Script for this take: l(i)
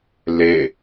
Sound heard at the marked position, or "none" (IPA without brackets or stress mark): e